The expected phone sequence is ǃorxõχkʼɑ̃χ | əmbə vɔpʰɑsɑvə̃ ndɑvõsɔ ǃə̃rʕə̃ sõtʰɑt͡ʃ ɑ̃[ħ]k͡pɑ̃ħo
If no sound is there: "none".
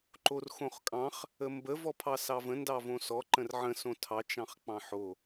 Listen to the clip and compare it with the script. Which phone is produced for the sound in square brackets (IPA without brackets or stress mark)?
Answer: χ